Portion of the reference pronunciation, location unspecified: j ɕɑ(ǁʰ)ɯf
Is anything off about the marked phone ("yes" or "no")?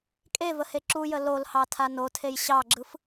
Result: yes